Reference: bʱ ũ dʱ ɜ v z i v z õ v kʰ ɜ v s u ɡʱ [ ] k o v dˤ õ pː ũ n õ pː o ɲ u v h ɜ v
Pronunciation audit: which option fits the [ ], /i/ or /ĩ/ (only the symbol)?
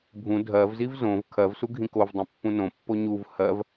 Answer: ĩ